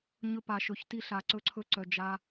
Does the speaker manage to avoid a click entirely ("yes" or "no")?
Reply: no